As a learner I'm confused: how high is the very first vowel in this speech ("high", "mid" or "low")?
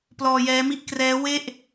mid